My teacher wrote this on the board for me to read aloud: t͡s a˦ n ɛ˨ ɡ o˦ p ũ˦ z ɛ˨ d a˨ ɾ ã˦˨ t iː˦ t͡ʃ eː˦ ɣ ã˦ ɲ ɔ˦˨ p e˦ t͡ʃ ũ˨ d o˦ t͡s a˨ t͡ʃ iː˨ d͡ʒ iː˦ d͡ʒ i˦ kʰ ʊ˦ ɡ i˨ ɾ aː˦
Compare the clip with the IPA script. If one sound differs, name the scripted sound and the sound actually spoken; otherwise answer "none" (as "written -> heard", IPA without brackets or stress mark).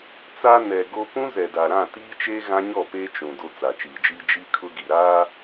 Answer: none